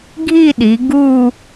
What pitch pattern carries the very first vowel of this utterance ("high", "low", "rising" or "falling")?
falling